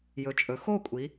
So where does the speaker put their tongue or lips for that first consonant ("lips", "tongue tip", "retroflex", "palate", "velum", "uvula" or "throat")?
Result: palate